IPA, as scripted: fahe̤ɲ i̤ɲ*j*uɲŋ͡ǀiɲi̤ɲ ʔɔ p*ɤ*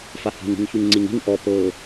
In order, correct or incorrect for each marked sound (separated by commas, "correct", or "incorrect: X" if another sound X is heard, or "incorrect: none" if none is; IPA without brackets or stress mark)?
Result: incorrect: ç, correct